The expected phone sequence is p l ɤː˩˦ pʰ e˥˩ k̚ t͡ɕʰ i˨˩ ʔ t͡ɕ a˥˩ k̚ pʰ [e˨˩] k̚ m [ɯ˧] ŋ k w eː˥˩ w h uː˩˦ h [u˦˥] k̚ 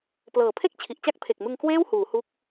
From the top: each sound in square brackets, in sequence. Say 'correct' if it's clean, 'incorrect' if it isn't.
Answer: correct, correct, correct

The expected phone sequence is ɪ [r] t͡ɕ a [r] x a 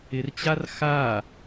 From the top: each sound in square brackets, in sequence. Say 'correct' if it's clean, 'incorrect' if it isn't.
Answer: correct, correct

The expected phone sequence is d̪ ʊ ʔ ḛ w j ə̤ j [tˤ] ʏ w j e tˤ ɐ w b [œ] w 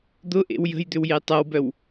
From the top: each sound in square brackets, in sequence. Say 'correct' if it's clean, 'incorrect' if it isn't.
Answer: incorrect, correct

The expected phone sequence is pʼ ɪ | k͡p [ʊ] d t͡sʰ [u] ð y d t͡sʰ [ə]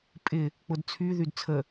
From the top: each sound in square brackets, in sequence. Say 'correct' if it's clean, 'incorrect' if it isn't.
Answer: correct, incorrect, correct

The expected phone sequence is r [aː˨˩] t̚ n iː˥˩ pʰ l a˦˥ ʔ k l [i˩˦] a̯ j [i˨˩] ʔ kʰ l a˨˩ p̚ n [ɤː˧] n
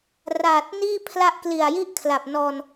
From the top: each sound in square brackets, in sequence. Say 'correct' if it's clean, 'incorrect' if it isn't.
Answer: correct, incorrect, incorrect, incorrect

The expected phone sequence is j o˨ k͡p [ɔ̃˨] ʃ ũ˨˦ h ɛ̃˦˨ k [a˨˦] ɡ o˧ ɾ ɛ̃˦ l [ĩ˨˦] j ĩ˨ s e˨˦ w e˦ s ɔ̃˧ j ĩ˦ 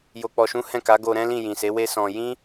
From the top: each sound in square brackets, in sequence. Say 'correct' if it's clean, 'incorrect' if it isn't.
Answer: incorrect, correct, incorrect

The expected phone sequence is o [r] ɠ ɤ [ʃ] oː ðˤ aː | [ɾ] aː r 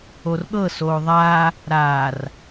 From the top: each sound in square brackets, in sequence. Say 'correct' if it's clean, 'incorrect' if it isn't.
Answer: correct, incorrect, correct

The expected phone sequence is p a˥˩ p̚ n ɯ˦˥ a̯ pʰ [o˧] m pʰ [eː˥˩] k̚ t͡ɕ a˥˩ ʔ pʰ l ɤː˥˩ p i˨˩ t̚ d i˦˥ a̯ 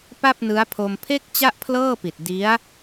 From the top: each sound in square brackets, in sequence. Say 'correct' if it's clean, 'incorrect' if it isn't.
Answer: correct, incorrect

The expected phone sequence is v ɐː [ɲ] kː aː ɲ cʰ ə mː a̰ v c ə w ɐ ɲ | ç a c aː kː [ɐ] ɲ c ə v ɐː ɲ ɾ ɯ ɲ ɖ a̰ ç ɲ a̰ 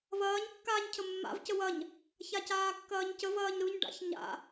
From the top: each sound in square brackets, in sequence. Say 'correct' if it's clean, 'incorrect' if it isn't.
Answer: correct, incorrect

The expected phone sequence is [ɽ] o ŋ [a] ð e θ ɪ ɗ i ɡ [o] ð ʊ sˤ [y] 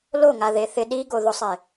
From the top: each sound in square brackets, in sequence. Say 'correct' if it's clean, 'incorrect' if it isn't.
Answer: incorrect, correct, correct, incorrect

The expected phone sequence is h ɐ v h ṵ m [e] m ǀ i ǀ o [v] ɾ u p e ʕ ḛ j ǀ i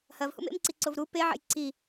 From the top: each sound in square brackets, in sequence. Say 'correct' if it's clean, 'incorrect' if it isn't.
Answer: incorrect, correct

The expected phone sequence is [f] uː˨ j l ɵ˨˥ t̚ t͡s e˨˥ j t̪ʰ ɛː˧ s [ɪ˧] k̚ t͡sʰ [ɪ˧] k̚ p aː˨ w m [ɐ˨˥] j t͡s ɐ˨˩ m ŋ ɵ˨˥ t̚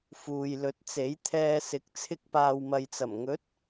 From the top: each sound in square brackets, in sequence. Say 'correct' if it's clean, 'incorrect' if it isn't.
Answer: correct, incorrect, correct, incorrect

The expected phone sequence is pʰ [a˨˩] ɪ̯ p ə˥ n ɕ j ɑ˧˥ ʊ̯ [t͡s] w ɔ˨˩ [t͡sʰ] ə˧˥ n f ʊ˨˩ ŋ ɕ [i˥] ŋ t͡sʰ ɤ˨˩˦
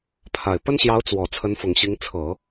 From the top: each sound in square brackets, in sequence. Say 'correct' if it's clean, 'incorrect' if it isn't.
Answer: correct, correct, correct, incorrect

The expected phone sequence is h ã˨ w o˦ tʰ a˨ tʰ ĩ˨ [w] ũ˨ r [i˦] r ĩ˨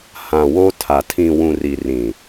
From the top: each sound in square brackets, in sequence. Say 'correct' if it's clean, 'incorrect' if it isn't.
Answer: correct, incorrect

